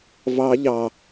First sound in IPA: v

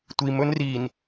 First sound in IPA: tʷ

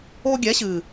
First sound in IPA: o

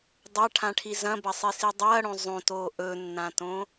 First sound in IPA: dˤ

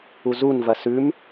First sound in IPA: u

